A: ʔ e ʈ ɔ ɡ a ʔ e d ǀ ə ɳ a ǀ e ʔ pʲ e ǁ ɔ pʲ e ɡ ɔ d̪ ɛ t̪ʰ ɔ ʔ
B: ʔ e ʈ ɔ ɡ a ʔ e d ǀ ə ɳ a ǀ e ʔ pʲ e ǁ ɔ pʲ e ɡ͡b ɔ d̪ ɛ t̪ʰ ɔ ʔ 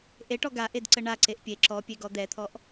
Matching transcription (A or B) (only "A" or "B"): A